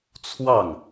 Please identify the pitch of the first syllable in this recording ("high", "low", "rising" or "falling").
falling